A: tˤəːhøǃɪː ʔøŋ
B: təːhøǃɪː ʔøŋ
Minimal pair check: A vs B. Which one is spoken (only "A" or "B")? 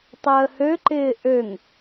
A